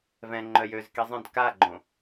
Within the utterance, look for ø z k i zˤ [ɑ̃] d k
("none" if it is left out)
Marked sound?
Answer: ə̃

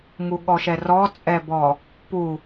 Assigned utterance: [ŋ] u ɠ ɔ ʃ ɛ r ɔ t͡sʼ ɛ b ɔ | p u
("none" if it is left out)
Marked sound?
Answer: ŋ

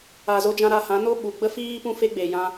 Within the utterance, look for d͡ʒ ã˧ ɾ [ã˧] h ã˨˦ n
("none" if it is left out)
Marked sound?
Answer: a˧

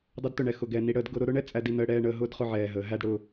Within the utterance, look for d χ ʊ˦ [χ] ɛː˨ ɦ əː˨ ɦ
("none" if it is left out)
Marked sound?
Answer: ʕ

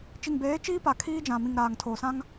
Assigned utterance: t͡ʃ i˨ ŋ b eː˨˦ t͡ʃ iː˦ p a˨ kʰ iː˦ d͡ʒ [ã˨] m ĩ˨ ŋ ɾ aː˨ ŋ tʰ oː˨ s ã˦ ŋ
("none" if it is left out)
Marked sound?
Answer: ã˨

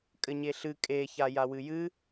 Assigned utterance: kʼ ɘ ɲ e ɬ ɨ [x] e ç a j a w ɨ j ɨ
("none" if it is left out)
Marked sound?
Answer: kʼ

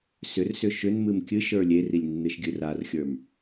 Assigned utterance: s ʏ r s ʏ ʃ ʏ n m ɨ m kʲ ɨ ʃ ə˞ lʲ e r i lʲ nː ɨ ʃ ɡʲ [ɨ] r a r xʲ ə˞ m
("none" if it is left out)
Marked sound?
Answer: ɨ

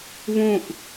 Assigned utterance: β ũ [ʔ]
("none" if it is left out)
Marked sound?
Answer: ʔ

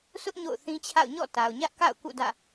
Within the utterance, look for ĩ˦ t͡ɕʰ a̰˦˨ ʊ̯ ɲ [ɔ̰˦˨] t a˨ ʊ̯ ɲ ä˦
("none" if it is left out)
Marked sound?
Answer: ɔ̰˦˨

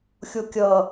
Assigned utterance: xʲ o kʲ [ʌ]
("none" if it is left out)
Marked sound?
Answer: ʌ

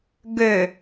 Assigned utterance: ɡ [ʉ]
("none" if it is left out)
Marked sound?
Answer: ø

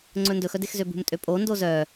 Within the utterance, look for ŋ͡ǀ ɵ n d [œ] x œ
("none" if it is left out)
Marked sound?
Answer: ɵ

